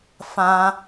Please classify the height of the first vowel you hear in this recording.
low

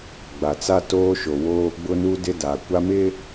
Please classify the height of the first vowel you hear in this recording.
low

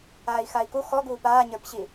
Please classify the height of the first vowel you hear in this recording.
low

